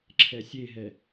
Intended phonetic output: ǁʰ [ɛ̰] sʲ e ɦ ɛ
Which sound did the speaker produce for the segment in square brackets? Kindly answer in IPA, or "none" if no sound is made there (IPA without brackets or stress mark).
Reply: ɛ